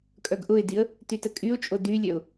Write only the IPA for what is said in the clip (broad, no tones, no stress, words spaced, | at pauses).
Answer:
kʼœɡʔʊɪ̯diə̯ | tytəkʼyʊ̯t͡ʃʼo dylʲœʊ̯